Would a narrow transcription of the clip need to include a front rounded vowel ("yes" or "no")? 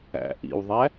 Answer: no